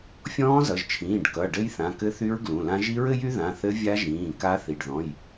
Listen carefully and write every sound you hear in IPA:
fʲ ɔ̃ː˦˥ z ʌ˩˧˩ ʒ t͡ʃʰ ĩː˩˧˩ ɖ k ʌ˩˧˩ ɖ ɘ˦˥ j θ ã˩˧˩ k ɘ˦˥ θ y˦˥ ɹ ɡ l ũ˩˧˩ l ã˦˥ ʒ i˦˥ ɹ ɘ˦˥ j y˦˥ ð ã˩˧˩ θ ɘ˦˥ vʲ a˦˥ ʒ ĩː˩˧˩ k a˦˥ θ i˩˧˩ ɖ ð ɔ̃˩˧˩ j

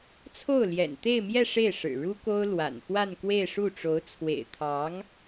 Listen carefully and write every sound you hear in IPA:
t͡sʰ o˥˩ ʊ̯ l j ɛ̰˨˩ n t̪ e˥˧ ɪ̯ m j ɛ˥˧ ʂ e˥˩ ɪ̯ ʂ ɻ̩˨˩ ɻ u˥ k o˥ ʊ̯ l w a̰˨˩ n x w a˥˧ n k w e˥˧ ɪ̯ ʂ u˥˩ ʈ͡ʂ o˧˥ ʊ̯ t͡sʰ w ḛ˨˩ ɪ̯ t̪ʰ ɑ˧˥ ŋ

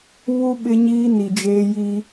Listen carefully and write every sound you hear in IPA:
β u˦ ɓ ɪ˦ ɲ iː˦ n i˨ d͡ʒ eː˦ j i˦

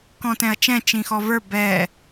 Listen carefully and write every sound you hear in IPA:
k ɔ̃ t ɛ̃ ɐ̯ t͡ʃ ɛ̃ t͡ʃ ĩ x ɔ v ə˞ b ɛ

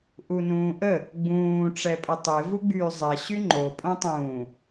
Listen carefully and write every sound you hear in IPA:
ʔ u n ũː ʔ ə | ɡ͡b ũː ʈ͡ʂ ɛ pʼ ə tˤ e v u ɡ͡b yː zˤ ɛ ɕ y ŋ͡ǃ o pʼ õ tˤ ũː

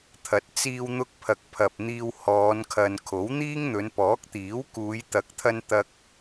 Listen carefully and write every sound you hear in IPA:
t̪ʰ ɐ˨˥ t̚ t͡s iː˧ w n̪ ʊ˧ k̚ pʰ ɐ˨ k̚ pʰ ɐ˨ p̚ n̪ iː˧ w h ɔː˨˧ n kʰ ɐ˨ n kʰ o˨˥ w n̪ iː˥ ŋ n̪ ɵ˨˧ n p ɔː˨˥ k̚ t̪ iː˨˥ w k uː˨˧ j t̪ ɐ˨˥ k̚ t̪ʰ ɐ˧ n t̪ ɐ˧ k̚

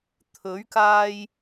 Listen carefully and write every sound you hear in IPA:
t̪ʰ ɵ˨˥ ɥ k aː˧ j

